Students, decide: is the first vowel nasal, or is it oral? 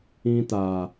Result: nasal